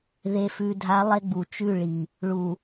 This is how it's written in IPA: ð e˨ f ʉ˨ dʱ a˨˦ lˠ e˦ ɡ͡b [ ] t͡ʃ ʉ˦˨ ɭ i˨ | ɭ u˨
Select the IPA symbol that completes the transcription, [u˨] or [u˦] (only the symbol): u˨